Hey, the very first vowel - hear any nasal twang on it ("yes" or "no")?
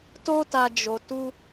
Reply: no